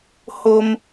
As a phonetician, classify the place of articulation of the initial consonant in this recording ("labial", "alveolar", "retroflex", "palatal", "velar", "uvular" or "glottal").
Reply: glottal